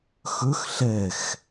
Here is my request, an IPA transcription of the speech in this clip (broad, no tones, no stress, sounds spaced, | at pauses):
x ɵ x ɬ ɛ x